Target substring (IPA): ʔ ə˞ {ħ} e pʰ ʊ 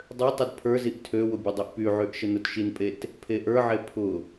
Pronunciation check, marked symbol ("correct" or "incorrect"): incorrect